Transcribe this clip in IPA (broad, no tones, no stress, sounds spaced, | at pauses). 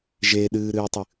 ʒ e ɗ ɨː ɾ ɨː tˤ ɨ